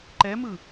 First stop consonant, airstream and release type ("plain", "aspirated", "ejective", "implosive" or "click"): click